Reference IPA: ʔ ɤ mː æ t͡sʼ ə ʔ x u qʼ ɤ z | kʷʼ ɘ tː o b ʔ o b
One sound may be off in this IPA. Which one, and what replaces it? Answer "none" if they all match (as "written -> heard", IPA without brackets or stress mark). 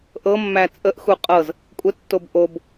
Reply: none